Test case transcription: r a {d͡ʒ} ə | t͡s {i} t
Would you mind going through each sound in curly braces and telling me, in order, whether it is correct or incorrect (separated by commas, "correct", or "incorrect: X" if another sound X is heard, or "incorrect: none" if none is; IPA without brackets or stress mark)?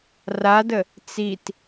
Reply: incorrect: d, correct